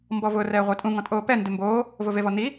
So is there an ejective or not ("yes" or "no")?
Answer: yes